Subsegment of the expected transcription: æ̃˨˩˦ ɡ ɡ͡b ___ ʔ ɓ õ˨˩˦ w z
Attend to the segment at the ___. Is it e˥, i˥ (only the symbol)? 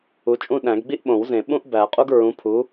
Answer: i˥